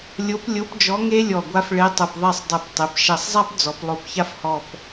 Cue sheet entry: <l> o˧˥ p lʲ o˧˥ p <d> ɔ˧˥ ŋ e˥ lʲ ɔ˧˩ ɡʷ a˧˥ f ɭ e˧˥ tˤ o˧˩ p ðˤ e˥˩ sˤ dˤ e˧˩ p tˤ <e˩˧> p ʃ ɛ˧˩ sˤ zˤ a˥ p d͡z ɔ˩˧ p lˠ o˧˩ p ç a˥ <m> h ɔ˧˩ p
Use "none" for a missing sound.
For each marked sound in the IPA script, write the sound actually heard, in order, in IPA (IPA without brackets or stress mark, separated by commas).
lʲ, d͡ʒ, e˩˧, f